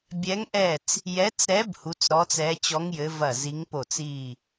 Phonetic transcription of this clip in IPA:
bʲ ɛ˨˦ ŋ ʔ ɛ˧˩ t͡s | j ɛ˨˦ t͡s ɾ ɛ˨˦ b h u˨˦ t͡s ɾ ɔ˨˦ t͡s ɛ˨˦ t͡ɕ ɔ˨˦ ŋ j ɘ˨˦ v ɐ˧˩ z i˨˦ ŋ p o˧˩ t͡s i˧˩

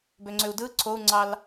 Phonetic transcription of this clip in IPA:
b ø ŋ͡ǀ ø u̯ d ɯ ǀʰ o u̯ ŋ͡ǀ ɑ l

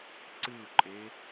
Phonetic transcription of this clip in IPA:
ǀ ɨ u̯ ǃʼ e

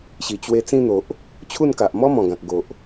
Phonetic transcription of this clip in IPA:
ɕ i˨˩ t͡ɕ w e˧ t͡s ĩ˧ n̪ o˨ ʔ | t͡ɕʰ u˥˧ n k a˨ ʔ m ɔ˦ m ɔ̃˨˩ ɡ ã˨ k̚ ɡ o˨ ʔ

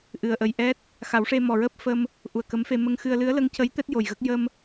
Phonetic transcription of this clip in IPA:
ʔ ɨ˨˩ ə̯ ʔ ə˨˩ j ʔ ɛ˦˥ t̚ | x a˨˩˦ w ʂ e˧ m ɔ˨˩ ɹ əː˦˥ p̚ f ə˧ m | ʔ u˨˩ ə̯ k ə˧˥ m f e˧ m ə˧ ŋ x ɨ˧ ə̯ l ɨ˧˥ ə̯ l ə˧˥ ŋ c ə˧˥ j t̪ ɛ˦˥ t̚ j o˨˩ j ɣ ə˦˥ k̚ j ə˧ m

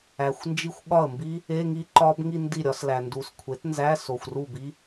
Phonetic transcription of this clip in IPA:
æ˨ xʷ n d͡ʒ i˥˧ xʷ ɠ ɒ˥˩ ə̯ m b i˦˥ | e˧˥˧ ŋ i˦˥ ǃ ɒ˦˥ b ŋ i˥˧ n d i˥˩ ɾʲ ɒ˦˥ s l æ˨ n d u˨ s kʷʰ e˩˥ t n z æ˧˥˧ s o˨ xʷ r u˥˩ b i˦˥

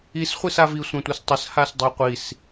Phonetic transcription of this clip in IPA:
i s χʷ i s a v i sʷ ã tʷ œ s tˤ ə s h a s dˤ ø qʷ i s

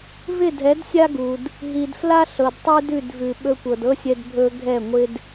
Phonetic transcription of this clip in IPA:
v ɪ˦˨ dʱ ɛ˨˦ d sʲ a˦ ɡ u˨ d | ɦ i˨ d f l a˦ ɬ ɤ˨ d tˤ ʉ˦ d ʉ˦˨ d v ʉ˨ ɓ ɵ˧ kʷ ɤ˨ d ɤ˦ sʲ ɛ˧ d bʱ ɵ˧ ɡʱ ɛ˦˨ ŋʷ ɪ˦ d

